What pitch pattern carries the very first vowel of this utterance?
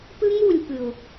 high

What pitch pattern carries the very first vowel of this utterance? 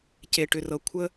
low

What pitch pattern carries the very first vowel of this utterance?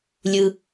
low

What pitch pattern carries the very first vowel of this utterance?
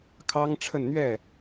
high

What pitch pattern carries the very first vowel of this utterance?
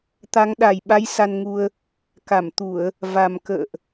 rising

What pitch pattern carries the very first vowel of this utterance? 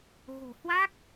low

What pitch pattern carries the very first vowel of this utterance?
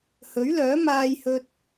rising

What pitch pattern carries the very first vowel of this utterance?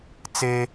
high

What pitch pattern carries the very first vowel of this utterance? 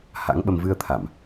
rising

